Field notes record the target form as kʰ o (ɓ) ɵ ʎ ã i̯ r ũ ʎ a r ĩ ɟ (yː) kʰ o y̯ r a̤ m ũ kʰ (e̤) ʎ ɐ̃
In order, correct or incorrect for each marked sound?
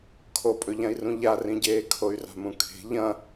incorrect, incorrect, correct

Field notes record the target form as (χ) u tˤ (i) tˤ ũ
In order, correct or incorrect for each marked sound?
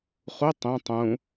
correct, incorrect

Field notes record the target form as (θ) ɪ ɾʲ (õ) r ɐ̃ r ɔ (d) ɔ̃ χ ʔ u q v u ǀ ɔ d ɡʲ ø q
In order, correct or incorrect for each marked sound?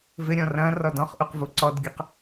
incorrect, incorrect, correct

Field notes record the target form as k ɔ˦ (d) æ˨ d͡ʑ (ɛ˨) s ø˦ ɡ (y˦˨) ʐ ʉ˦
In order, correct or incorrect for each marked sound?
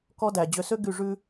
correct, incorrect, correct

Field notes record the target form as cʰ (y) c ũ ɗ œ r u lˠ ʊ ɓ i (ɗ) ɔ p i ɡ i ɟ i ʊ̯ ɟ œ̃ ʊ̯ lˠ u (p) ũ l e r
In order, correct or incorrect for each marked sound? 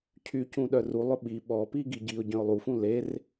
correct, incorrect, incorrect

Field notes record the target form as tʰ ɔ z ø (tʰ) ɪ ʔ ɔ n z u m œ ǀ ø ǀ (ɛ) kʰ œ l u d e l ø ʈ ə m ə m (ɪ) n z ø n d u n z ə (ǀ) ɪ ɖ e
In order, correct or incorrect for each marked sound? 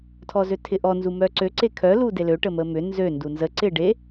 correct, incorrect, incorrect, correct

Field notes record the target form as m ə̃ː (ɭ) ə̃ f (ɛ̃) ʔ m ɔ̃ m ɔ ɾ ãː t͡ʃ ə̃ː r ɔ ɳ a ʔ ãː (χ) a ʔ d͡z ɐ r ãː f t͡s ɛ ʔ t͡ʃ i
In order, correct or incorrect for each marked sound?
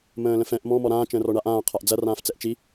incorrect, correct, incorrect

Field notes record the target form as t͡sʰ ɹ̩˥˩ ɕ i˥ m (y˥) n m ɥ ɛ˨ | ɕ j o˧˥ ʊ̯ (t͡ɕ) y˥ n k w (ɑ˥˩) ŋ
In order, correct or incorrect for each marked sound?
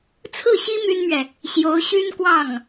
correct, incorrect, correct

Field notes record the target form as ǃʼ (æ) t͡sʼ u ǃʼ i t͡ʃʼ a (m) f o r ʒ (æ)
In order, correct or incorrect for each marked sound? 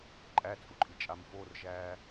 correct, correct, incorrect

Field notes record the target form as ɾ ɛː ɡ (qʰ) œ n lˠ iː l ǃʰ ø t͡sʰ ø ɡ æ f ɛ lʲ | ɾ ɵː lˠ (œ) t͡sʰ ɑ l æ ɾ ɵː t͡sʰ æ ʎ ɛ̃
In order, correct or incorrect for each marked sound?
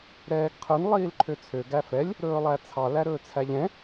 correct, incorrect

